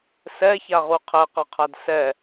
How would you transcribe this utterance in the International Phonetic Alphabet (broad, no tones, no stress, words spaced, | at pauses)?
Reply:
sɛçaʁu qʰɛqʌqʰad sɛ